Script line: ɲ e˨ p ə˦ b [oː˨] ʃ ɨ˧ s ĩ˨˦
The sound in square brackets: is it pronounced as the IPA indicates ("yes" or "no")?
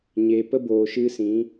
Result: yes